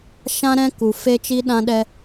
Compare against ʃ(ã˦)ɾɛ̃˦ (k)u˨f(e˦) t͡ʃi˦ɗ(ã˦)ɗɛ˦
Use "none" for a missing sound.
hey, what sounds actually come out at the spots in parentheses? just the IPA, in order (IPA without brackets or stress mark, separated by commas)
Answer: ã˦, k, e˦, ã˦